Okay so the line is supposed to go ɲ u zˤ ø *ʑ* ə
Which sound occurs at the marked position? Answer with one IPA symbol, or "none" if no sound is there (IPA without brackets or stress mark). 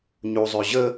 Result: ʑ